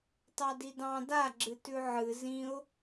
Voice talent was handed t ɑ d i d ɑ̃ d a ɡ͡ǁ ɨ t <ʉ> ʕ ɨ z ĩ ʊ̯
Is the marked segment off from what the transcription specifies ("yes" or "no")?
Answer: no